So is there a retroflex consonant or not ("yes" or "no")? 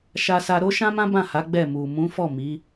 no